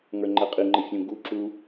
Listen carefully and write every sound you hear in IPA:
ŋ ə˞ ŋ͡ǃ ɛ qʼ i ŋ͡ǃ ɘ fʲ ũ ɡ u ǁ u

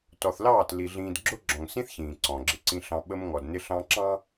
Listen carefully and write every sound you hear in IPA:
t ɔ˨ θ l ɑː˦˨ t l i˨ ɮ ĩː˨ d ɡ͡ǁ ʊ˦ ɡ͡ǁ ɔ̃˨ ŋ s ĩ˦ θ ç ĩː˨ ǀ ɔ̃˨ ɡ͡ǁ ɪ˦ ǀ ĩ˦ ɬ ɑ̃˦ ɓ ə˦ m ŋ ɔ˨ d n ɪ˦ ɬ ɑ̃˦ ǁ ɑ̃˦

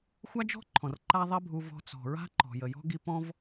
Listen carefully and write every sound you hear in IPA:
xʷ a˦ d͡ʒ ɔ̤˦ ǃʰ ɔ̃˨ r ǃ a˦ ðˤ ɛ˦ bʱ u˧ v ɔ̤˧ t͡s ɔ̤˨ ɹ a̤˦ ǃ ɔ̤˨ j ə˨ j ɔ̤˦ ɡ i˧ p ɔ̃˦ v

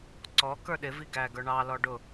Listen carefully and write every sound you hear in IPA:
ǀ ɔ k ə˞ ɗ ɪ v i ɡ æ ɡ ə˞ ɳ ɑ l ɔ ɖ ʊ

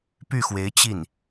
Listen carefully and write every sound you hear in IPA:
p y˥˩ x w e˧˥ ɪ̯ t͡ɕ i˥˩ n

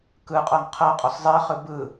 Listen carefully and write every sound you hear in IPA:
k ɯ qʼ ɤ ŋ qʰ ɤ qʼ ɔ s zˤ e χ ɯ b ɯ

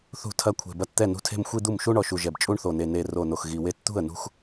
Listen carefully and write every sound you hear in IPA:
θ ṳ˥˩ tʰ ɐ˥˧ kʷʰ e̤˨˩ b ɐ˥˩ t t̪ ɛ˥˩ n ṳ˥˧ tʰ e̤˥˧ m xʷ i˥˧ d̪ u˥˩ m ʃ u˥˧ ɳ ɔ˨˩ ʃ u˨˩ ʒ ɛ˨˩ b t͡ʃʼ u˥˧ ɳ θ o˨˩ n e˨˩ n e˨˩ r o˨˩ n o˨˩ x ɣ i˨˩ w e˥˧ t t̪ ṳ˥˩ ə̯ n ṳ˥˧ x

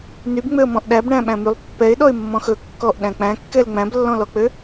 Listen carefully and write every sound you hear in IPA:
n y b ŋ͡m ø ə̯ m ɔ̃ ʔ ɗ æ b ɳ æ̃ ɓ æ̃ m y lˠ pː ɛ ɪ̯ ɗ ɔ ɪ̯ mː ɔ̃ x ɵ kː ɔ ʔ ɗ æ̃ k͡p æ̃ kː ɛ l ŋ͡m æ̃ b lː ɔ̃ l ɔ k͡p ø

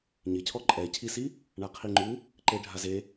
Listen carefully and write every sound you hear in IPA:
ɲ ɪ cʰ ɔ ǃʼ ɛ cʰ i s i | ɳ a qʰ i ŋ͡ǃ u | ǃ e ɖʱ a z e

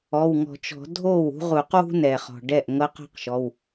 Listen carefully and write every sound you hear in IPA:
ɔ˩˧˩ w ŋ ɔ̤˨˩˦ t͡ʃ ɔ̤˨˩˦ dʱ o˥˩ w ṳ˥ ʁ u˨˩˦ q w ṳ˥ n ɛ˩ χ ɔ̤˩ ɖ ɛ˥˩ ʔ ŋ ɤ˧˥ q ɔ̤˥ q ʃ ɔ˩˧˩ w

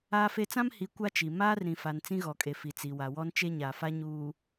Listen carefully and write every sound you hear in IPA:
aː˦ f e˦ t͡s ã˦ m h i˨˦ kʷ a˦ t͡ʃ i˨ m aː˦ r ɾ ĩ˨ f a˨ n t͡s ĩ˦ ɣ ɔ˨ kʼ e˨ f i˨ t͡s i˨ w a˨ w ɔ˦ n t͡ʃ e˦ ɲ a˨ f a˦ ɲ uː˨

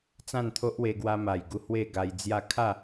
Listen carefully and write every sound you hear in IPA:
t͡s ã˥˧ n t̪ʰ o˦ ʔ w e˧ ɡ w a˧ m a˨˩ j ɡ u˧ h w e˥˧ ɡ a˧ j d͡z j a˥˧ kʰ a˥˧

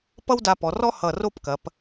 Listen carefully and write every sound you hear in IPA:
p ʌ˥ w d a˧ p ɔ˩˧ r ɔ˥ h ʌ˧˩ r o˥˧ p k ɐ˩˧ p

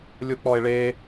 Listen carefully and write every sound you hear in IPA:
lʲ o k͡p ɔ e̯ ɭ e

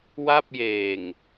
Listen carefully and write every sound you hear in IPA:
w a˥˩ p̚ j eː˨˩ ŋ

